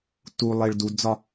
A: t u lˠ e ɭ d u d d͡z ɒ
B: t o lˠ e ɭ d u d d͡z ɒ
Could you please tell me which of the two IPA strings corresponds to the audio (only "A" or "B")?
A